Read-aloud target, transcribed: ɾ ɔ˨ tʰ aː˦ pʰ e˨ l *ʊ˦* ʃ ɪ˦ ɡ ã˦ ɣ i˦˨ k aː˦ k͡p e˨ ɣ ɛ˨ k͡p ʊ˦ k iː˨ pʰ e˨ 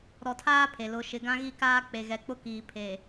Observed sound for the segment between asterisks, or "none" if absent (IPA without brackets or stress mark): ʊ˦